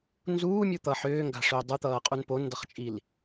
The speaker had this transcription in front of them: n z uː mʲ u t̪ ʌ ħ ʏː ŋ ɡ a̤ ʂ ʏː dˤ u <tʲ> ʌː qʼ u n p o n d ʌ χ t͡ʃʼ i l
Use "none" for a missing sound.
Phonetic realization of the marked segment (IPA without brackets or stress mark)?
t̪